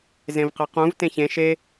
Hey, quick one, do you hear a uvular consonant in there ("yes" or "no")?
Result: yes